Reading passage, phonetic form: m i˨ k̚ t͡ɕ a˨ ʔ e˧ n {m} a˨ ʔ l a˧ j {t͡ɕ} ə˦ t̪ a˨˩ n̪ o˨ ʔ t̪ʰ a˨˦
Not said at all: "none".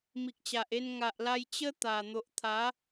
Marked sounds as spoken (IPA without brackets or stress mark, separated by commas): ŋ, t͡ɕ